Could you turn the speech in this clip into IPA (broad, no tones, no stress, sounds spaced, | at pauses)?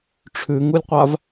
ʈ͡ʂʰ ʉ ŋ u lʲ qʷ a v